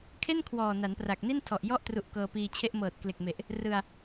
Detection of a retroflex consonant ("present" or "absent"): absent